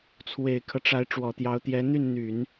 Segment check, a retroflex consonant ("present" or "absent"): present